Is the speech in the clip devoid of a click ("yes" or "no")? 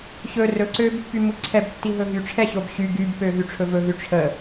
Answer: no